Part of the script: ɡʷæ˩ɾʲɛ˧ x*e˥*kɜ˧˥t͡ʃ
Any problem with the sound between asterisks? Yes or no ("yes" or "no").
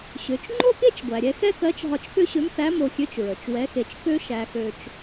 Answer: yes